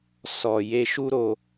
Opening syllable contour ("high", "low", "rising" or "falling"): low